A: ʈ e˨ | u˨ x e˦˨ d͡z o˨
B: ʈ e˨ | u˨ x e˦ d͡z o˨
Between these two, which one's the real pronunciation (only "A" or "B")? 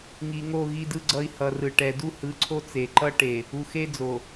B